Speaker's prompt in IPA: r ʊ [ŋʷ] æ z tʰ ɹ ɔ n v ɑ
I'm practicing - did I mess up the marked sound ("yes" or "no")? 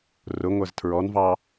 no